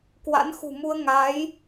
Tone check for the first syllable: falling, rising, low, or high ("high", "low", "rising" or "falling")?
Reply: rising